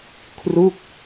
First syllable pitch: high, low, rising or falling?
falling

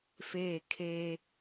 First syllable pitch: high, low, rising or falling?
falling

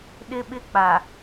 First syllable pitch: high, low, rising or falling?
high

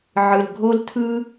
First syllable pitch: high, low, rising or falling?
low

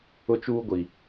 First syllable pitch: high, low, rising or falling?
high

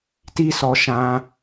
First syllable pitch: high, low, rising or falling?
high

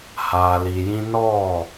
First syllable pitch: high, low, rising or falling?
low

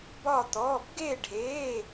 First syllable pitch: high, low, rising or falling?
falling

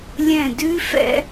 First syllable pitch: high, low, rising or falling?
falling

